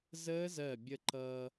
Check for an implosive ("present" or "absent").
absent